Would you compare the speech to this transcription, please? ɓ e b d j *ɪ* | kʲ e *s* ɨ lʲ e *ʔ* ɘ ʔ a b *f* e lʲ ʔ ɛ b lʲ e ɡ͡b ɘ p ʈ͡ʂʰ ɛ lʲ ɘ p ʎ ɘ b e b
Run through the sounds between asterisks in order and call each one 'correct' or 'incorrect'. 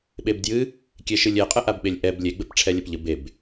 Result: incorrect: ɨ, incorrect: ʃ, incorrect: qʼ, incorrect: ɓ

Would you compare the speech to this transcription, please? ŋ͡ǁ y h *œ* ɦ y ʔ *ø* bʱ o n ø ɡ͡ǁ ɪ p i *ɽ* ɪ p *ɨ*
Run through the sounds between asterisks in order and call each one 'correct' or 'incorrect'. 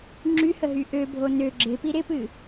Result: incorrect: ə, correct, incorrect: ɾ, correct

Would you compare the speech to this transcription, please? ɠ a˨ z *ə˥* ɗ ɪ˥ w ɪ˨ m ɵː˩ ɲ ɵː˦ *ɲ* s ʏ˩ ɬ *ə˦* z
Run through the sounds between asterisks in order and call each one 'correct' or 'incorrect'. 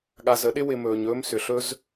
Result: correct, incorrect: m, incorrect: ɵ˦

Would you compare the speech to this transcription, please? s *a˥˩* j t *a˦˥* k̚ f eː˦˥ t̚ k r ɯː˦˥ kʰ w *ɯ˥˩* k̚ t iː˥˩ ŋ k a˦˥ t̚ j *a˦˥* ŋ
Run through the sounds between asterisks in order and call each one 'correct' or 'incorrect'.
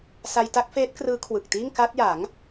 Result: incorrect: a˧, correct, incorrect: ɯ˨˩, incorrect: a˩˦

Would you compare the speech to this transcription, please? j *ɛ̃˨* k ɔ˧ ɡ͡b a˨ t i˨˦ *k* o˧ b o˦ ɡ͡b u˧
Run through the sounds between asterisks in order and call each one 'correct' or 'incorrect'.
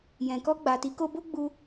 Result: correct, correct

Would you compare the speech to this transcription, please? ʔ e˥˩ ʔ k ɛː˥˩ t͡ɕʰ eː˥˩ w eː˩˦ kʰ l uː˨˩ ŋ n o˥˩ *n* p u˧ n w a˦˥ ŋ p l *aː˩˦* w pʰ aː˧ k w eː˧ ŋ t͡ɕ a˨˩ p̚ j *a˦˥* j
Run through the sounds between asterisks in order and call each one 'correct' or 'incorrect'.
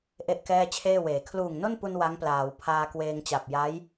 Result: correct, correct, correct

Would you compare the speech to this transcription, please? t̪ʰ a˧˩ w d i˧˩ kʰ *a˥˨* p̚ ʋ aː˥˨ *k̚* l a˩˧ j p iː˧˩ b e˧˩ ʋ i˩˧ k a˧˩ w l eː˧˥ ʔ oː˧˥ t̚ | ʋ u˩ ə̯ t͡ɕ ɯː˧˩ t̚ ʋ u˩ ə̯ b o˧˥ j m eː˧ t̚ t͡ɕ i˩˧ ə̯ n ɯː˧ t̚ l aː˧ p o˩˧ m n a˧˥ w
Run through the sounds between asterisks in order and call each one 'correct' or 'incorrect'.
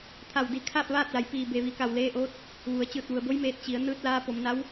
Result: incorrect: aː˥˨, incorrect: t̚

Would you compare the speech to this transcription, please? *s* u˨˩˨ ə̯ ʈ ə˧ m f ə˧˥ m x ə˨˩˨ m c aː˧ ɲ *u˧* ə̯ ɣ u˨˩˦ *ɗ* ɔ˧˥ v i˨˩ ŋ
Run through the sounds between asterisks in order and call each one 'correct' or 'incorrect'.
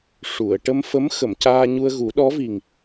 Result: incorrect: ʂ, correct, correct

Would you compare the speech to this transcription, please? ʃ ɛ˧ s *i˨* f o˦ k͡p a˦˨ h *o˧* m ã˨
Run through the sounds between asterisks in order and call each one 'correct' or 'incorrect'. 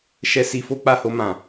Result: incorrect: i˧, correct

